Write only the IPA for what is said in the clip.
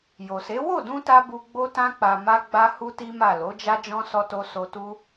j o˨ s e˨˦ w o˦˨ d ũ˧ t a˦ b u˧ ɡ͡b o˦ t ã˦ k͡p a˧ m a˦ ɡ͡b a˦ h u˦ t i˦ m a˦˨ l o˨˦ d͡ʒ a˦ d͡ʒ ɔ̃˦ s ɔ˧ t o˧ s o˧ t u˦

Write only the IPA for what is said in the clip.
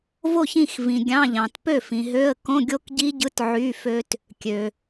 v o˥˩ ç ĩ˥˩ x v ĩ˨ ɡʲ ɑ̃˧˥˧ ʎ ɑ̃˨ t p ø˥˩ f ĩ˨ ɦ ø˧˥˧ ə̯ k õ˧˥˧ ɡʲ o˦˥ k ɟ i˦˥ ɟ ɯ˧˥˧ t ʕ y˧˥˧ f ø˦˥ t | kʲ ø˨

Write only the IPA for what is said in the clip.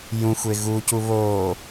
j ũ xʷ e ɣ u c u β oː

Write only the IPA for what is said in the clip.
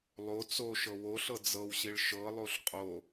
lˠ o t͡s o ʃ ɤ w o ɬ ɤ d͡z ɤ w ɕ i ɭ ʃ ɤ lˠ o ɬ qʼ o

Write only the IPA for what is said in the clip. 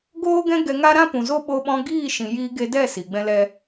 ɡ oː˦ ɡ ɛ̃˦ ɡ ɛ˧ ŋ a˦ ɾ ã˦ p ũ˨ z o˦ ɓ o˧ ɓ ɔ̃˧ ɡ iː˦˨ ʃ ĩ˨ j iː˧ ɡ e˧ d ɛ˦˨ s i˨ ɡ͡b ɛ̃˦ l ɛ˦

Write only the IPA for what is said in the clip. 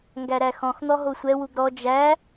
ŋ ɡ æ ɾ æ x ɔ̃ x n̪ ɔ ɦ o sʷ ɛ w u ɡ ɾ ɔ d͡ʒ æ

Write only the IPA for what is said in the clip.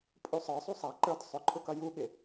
pʼ u sˤ ə˞ sˤ u sˤ ɑ ǃ ə˞ d sˤ ʊ ǃʰ ʊ k ʌ j u ɠ ɪ

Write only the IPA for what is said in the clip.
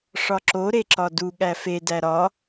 ʂ ɒ ǁ o ɾ e ǁ ɒ d u ɠ æ f e d æ ɾ ɒ

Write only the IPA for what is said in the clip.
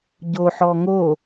ɟ o ħ ɔ ŋ o

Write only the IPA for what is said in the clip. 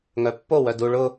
ŋ œ pː o w œ d u ɭ ʊ

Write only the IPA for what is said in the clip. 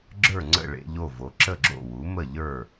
ɡ͡ǁ ə˞˥˩ ŋ͡ǀ ə̰˥˩ ɭ ḛ˧˥˧ ʎ o˥˩ v o˩˥ ǁ ə˥˩ ɡ͡ǁ o̰˥˩ w u˩˥ m ə˥˩ ʎ ə˞˥˩

